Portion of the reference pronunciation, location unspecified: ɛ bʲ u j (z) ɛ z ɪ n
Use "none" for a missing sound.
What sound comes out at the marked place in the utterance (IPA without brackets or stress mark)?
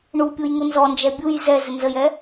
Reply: z